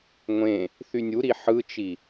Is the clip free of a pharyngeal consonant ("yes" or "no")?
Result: no